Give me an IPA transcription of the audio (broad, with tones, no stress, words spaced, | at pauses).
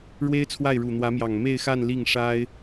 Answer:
ɻwe˥ɪ̯t͡sʰwa˥˩ɪ̯ ɻu˨˩n̪wä˧˥mjɑ˨˩ŋ me˥˧ɪ̯xa˥˧n li˥˩ŋ ʂa˥ɪ̯